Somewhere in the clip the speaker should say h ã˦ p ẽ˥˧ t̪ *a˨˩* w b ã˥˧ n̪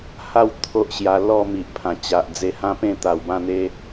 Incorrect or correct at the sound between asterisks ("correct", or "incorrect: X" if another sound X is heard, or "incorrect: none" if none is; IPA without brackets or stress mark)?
correct